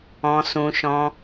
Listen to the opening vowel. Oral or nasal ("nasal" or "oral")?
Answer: nasal